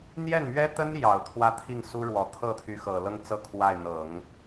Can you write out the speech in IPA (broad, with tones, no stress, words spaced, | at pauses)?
n̪jɛ˥˩nmɥɛ˥t̪ə˥njɑ˨˩ʊ̯ t̪ʰwä˥t̪ʰi˥˩ŋsu˥ɻwɔ˧˥ t̪ʰɤ˥˩t̪ʰy˧˥xɤ˨˩lɤ˥ŋ t͡sɤ˥˧kʰwa˥˩ɪ̯ n̪ɤ˨˩˦ŋ